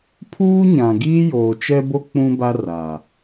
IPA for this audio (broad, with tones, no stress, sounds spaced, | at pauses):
pʰ uː˦ ɲ ã˨ ɡ iː˦ j oː˨ t͡ʃ ɛ˦ b o˦ k͡p ũ˦ b a˦ r a˨